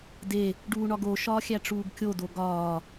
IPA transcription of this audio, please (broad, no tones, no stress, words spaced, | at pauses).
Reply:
de | ɖuːɳɒɡo ʃɒːxʲæʈ͡ʂuːɡkʲo doɡɒː